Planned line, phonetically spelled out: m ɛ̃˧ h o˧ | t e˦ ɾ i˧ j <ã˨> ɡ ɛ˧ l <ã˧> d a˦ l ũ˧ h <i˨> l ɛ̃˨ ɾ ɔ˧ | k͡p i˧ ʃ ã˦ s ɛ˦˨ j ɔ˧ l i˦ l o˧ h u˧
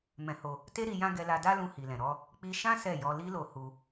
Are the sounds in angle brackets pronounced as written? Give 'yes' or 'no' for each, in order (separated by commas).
no, no, yes